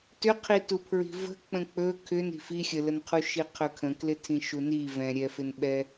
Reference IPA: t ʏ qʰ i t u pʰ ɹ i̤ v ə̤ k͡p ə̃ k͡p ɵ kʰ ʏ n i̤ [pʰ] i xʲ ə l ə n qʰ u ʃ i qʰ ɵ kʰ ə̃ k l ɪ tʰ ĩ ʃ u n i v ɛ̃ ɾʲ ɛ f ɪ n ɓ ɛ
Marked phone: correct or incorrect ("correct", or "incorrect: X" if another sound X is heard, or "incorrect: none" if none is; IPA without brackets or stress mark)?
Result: incorrect: f